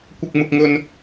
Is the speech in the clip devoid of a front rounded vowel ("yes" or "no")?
yes